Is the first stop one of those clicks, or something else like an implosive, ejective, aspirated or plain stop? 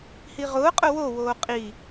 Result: ejective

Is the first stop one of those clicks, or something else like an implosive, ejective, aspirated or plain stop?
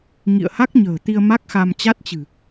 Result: plain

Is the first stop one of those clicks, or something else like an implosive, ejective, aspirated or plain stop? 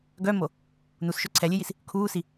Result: plain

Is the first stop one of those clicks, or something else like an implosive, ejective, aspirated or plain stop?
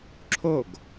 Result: click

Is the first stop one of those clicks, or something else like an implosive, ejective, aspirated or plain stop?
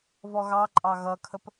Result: click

